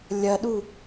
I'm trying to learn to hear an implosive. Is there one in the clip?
yes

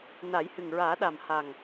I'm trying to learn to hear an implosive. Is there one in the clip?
yes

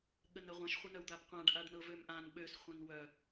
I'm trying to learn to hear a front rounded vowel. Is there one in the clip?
yes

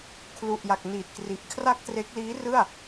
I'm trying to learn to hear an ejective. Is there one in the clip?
no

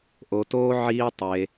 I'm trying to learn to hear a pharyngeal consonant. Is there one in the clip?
yes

